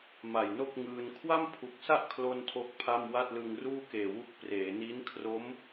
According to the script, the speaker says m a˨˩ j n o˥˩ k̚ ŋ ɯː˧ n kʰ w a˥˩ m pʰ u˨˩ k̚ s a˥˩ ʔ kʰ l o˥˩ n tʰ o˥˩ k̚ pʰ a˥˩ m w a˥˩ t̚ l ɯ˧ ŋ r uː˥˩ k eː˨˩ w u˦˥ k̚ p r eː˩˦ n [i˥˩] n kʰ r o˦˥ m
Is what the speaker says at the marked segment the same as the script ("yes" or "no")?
no